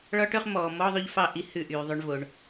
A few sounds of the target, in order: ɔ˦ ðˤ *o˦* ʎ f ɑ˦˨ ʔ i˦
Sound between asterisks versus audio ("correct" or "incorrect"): correct